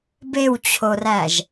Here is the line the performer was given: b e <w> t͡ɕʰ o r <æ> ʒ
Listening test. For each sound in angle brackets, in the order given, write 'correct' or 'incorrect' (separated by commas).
correct, correct